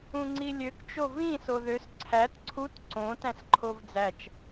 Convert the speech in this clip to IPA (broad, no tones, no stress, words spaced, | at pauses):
ũŋ͡ǀilʲøk t͡ʃovĩ soðøs ǀʰæt ǀʰut ǀõ tæ̃sǃʰovd͡zæt͡ʃ